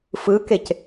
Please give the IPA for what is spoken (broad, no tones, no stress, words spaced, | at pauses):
fɯkec